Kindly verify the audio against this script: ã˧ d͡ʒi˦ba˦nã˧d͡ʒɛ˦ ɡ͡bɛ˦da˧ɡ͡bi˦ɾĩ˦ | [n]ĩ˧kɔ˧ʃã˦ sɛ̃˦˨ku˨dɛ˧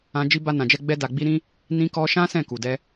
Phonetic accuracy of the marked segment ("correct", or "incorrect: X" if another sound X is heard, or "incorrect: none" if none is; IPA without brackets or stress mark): correct